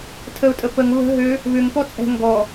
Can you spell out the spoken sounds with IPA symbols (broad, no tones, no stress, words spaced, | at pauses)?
tʰəʊ̯tʼə pəŋ βə̤ ɦø | βʏŋ pɔt͡sʼɛ̤ ŋɡɔ